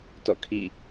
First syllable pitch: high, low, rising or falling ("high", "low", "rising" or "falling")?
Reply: falling